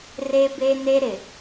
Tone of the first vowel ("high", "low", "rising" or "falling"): high